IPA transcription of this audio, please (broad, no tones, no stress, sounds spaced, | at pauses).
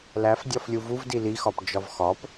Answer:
l æ f dʲ ɒ f lʲ u v u v d i l i x ɒ p d͡ʒ ɒ v x ɒ p